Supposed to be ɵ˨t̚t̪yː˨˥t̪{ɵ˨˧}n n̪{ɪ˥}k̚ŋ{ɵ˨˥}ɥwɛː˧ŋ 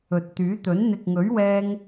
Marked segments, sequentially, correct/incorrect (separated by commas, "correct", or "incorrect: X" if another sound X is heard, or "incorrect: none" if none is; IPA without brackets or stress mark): incorrect: ɵ˨˥, incorrect: ɪ˨, correct